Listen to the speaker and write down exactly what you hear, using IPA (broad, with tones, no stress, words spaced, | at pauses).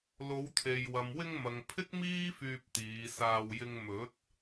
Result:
lo˨˧wt̪ʰe˨j wɐ˨mwɪ˧ŋmɐ˨ŋ pʰɪ˥k̚miː˥ fyː˧p̚t̪iː˨˧saː˧wjɪ˧ŋ mɵ˨˥t̚